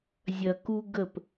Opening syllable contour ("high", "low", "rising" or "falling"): low